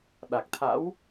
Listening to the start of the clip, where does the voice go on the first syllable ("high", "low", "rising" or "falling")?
low